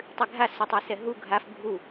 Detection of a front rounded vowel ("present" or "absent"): absent